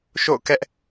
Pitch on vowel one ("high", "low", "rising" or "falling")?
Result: falling